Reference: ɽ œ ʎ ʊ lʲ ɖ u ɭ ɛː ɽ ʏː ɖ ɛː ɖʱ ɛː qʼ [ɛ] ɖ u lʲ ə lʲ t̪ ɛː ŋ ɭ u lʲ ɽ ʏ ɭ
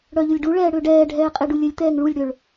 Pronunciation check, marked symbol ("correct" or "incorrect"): incorrect